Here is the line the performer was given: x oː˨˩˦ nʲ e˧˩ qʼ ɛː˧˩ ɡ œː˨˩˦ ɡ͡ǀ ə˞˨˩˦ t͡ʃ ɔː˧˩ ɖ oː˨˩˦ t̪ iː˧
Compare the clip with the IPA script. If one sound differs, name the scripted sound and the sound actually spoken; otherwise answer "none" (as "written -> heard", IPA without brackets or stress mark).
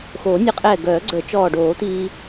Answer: none